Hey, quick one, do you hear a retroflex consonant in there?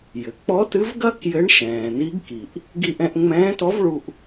yes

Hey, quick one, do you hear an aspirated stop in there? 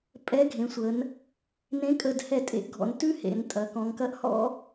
no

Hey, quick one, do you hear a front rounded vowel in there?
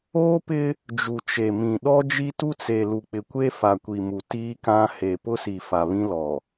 no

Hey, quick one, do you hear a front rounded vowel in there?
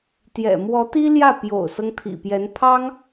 no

